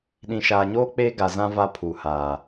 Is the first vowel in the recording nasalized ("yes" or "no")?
yes